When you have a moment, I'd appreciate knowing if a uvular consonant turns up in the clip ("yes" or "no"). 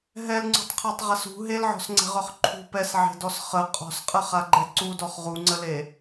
yes